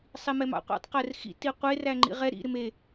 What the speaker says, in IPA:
sˤimɛmɑ̰qʷḭtˤ qɛrxḭ tiqʷe ræŋ͡ǃḭʁɛ ɾḭ ɾɪme

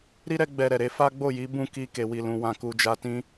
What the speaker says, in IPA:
ɾi˦ɾɛ˦ ɡ͡bɛ˧ɾɛ˨ɾe˨˦ fa˦ɡ͡bo˦˨ji˨˦ bũ˦˨ki˧ ke˨wi˨lũ˨ wã˨ku˨d͡ʒa˨tĩ˧

